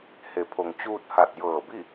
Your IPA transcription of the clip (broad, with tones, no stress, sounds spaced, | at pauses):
h e˩˧ pʰ o˩ ŋ t͡ɕ uː˧ t̚ h a˧˩ t̚ j ɤː˧˩ b i˥˨